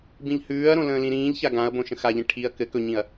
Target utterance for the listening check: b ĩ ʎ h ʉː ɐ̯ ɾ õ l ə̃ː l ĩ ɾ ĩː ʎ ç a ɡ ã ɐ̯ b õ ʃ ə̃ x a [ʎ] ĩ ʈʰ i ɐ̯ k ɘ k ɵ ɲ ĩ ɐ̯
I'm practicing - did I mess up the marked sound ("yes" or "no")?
no